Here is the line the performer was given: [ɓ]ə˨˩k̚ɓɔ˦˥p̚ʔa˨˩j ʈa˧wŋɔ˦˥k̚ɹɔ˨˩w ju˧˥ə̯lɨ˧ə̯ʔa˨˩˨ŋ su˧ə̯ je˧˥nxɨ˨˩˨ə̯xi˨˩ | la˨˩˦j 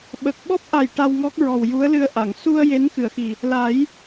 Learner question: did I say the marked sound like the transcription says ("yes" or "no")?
yes